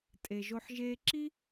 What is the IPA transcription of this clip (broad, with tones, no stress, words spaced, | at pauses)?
tʼe˨ʒo˧ħ ʒeː˧ǁi˦